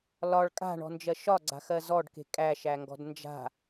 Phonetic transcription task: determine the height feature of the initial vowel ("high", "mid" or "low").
low